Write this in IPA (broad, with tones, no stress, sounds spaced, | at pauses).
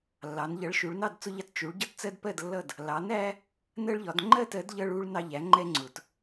lː ɑ˩˧ n ʎ ʌ˩˥ ɭ ʃ u˩˧ ɭ n ɑ˥˨ d t͡s ʊ˦ ʎ ɑ˦ t t͡ʃ u˩˧ ɭ ɟ ʌ˦ t t͡s ɜ˦ d p ɜ˥˨ d lː ʌ˥˨ d | l ɑ˩˥ n æ˦ | n ɜ˦ ɭ ʎ ɒ˩˧ d ŋ͡ǃ ɜ˥˨ t ɜ˩˥ d ʎ ʌ˦ ɭ u˦ ɭ n ɑ˦ ʎ æ˩˥ ŋ͡ǃ ɛ˦ ŋ͡ǀ ʊ˩˧ t